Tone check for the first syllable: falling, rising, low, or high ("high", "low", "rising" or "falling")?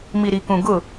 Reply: low